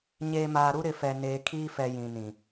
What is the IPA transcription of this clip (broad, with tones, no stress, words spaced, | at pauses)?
ɲeː˨maː˨ɾu˦ ɾɪ˨fɛ˨ neː˨kʰiː˦fɛ˨ jĩ˨nĩ˨